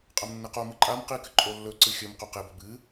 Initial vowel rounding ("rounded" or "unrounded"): unrounded